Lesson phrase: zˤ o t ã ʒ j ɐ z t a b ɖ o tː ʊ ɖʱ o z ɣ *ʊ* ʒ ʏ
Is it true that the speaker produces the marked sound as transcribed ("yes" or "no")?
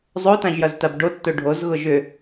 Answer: yes